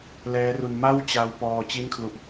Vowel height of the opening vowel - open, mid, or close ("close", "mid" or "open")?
mid